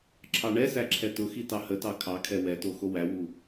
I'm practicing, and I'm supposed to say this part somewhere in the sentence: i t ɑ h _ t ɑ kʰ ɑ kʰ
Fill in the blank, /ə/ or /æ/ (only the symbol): ə